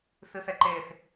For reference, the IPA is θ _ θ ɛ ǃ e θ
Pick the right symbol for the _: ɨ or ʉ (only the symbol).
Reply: ɨ